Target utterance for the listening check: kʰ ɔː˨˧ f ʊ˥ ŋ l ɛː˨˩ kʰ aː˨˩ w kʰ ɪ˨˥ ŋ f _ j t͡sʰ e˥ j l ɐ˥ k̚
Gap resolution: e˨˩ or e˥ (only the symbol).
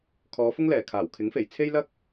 e˨˩